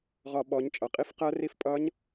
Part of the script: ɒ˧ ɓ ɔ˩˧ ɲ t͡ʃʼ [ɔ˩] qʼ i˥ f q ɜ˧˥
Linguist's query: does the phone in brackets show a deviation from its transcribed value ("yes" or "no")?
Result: yes